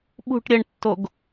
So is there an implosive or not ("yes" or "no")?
yes